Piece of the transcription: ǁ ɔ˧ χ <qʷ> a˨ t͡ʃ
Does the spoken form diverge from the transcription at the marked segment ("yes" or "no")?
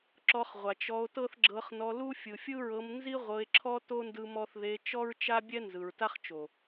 yes